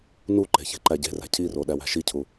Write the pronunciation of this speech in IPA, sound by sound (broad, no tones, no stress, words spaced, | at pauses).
nuǃe̤ çe̤ǃæɟe̤ræ̤ cʰiro ɗæwæ̤ʃicʰu